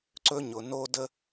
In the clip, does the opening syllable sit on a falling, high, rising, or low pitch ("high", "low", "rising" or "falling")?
high